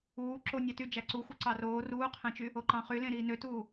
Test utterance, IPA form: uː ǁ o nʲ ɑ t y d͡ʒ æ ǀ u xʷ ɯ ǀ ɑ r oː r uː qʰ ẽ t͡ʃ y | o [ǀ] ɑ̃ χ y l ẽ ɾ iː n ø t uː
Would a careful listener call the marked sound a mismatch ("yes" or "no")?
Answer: yes